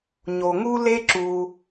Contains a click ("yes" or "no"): yes